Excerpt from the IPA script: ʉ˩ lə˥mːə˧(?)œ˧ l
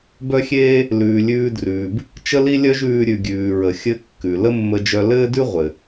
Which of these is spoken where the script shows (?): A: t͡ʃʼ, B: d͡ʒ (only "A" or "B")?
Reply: B